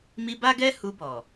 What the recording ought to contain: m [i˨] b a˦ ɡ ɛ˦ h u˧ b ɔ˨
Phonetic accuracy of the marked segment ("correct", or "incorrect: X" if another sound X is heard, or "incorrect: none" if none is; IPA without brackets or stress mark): incorrect: i˧